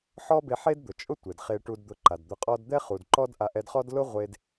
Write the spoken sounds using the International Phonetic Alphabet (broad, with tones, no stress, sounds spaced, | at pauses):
ħ ɔ˦ b e˧ ħ e˦ d d̪ ʊ˨ t͡ʃʼ ʊ˦ tʷ e˨ d χ e˧ ʈ u˧ d d̪ ʊ˧ ǃ a˨ d d̪ ʊ˧ qʼ ɔ˦ d d̪ ɛ˦ χ u˨ d ǃ ɔ˦ d ʔ a˧ ʔ ɛ˧ d χ ɔ˦ d l ʊ˦ ʁʷ e˦ d